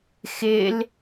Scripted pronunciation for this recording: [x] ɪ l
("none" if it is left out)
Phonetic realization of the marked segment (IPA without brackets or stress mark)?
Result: x